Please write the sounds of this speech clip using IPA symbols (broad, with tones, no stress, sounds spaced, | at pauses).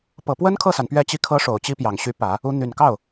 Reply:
p ɤ˨˩ p w ə˥ n kʰ ɤ˥˩ s a˩ n p ɥ ɛ˥˧ t͡ɕ i˥˩ kʰ ɤ˥ ʂ o˨˩ ʊ̯ t͡ɕ i˥ p j ɑ˨˩ ŋ ɕ y˧˥ p ä˨˩˦ | u˧˥ n̪ y˨˩ n k ɑ˥˩ ʊ̯